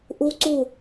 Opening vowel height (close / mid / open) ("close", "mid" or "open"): close